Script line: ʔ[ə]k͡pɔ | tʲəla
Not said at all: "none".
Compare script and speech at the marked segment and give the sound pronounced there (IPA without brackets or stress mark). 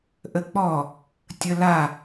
ə